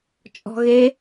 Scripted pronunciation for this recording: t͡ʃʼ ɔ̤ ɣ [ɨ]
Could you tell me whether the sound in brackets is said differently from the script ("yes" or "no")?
yes